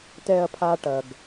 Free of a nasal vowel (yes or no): yes